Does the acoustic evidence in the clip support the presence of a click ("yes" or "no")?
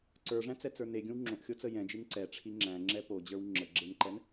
yes